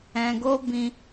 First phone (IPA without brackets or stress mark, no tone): ɛ̃